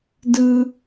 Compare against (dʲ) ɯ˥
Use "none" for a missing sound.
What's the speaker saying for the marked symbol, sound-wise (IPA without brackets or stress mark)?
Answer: d